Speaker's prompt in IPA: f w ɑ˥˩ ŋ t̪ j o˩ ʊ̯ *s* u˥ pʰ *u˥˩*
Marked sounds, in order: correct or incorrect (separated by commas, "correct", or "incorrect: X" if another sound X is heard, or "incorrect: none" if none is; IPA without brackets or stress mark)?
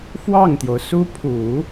correct, incorrect: u˨˩˦